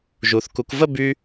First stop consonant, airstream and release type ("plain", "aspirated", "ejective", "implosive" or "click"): plain